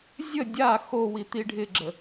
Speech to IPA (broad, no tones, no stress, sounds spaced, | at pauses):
zʲ ə dʲ a x o w i t̪ i ɖʱ ɪ ɡ͡ǁ ə